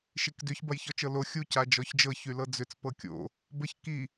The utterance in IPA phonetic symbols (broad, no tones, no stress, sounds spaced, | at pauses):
ʃ i k d ʏ ç b ɐ j ç ɔ t͡ʃ ɤ l o xʲ u c a d͡ʒ ɔ ç d͡ʒ ɤ ç y l ɤ d͡z ʏ t͡s p ɤ kʲ o̰ | b ə ç k i